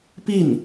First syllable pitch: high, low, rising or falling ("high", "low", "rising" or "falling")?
falling